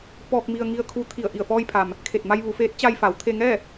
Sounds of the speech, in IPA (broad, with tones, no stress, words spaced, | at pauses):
pɔː˧k̚mi˧ə̯ ŋi˧ə̯kʰuː˧ t̪ʰi˧˩ə̯ʔi˧˩ə̯fɔː˧jpʰa˩m | kʰe˧˩t̚ma˧j ʋu˩˧feː˧˥t̚ t͡ɕa˧jfa˩˧w t̪ʰe˧ŋɛː˥˨